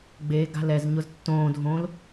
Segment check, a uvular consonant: absent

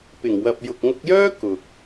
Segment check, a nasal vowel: absent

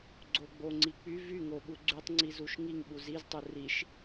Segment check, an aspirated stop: absent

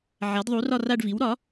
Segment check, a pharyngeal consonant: present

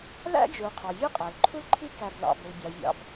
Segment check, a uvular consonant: present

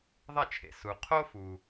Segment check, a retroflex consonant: absent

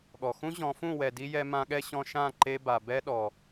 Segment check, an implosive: present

